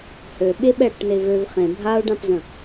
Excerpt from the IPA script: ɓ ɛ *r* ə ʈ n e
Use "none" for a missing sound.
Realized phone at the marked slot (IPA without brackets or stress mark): ɽ